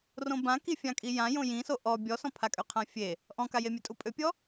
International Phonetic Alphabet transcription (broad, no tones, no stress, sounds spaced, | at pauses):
r õ b ã k i fʲ ã kʼ i j ã j õ j ĩ s o ʔ ɔ bʲ ɔ s ɔ̃ pʰ a kʼ ø qʰ ã fʲ e | ʔ ɔ̃ k a j e mʲ ø tʼ u pʼ ø pʲ ɔ